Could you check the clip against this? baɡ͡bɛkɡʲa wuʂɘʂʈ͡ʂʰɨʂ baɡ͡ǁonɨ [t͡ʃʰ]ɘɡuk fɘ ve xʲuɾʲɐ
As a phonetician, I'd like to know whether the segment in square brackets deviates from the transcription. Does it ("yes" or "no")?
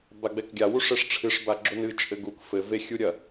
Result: yes